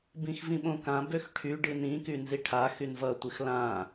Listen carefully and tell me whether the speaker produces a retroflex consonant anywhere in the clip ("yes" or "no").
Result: yes